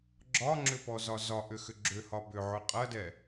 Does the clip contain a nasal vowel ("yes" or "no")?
no